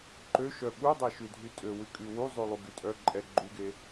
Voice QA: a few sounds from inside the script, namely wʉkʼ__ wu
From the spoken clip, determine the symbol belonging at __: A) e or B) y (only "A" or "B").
B